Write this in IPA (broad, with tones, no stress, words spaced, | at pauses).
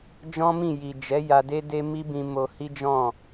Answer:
d͡ʒɔ̃˦mĩ˦˨ ji˨d͡ʒɛ˨˦ ja˧de˦de˦ mi˦bĩ˧mo˧ hi˦ d͡ʒɔ̃˦˨